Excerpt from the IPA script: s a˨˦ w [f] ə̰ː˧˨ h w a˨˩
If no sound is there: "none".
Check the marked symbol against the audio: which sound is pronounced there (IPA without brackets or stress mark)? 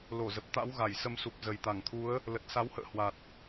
h